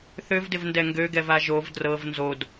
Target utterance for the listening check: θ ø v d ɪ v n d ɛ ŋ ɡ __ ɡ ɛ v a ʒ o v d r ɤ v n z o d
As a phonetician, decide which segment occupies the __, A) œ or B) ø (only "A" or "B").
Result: B